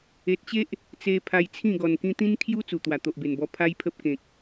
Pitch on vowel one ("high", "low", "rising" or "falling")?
low